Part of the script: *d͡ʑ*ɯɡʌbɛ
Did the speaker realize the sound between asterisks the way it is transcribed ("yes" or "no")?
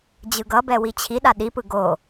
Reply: yes